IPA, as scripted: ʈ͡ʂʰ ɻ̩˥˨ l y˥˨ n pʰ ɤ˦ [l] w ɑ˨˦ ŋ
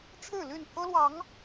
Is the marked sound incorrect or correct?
correct